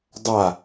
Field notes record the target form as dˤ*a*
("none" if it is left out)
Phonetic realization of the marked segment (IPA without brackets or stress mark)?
a